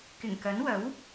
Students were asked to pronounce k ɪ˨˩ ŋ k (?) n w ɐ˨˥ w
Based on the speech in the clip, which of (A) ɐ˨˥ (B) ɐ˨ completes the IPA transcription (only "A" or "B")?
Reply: A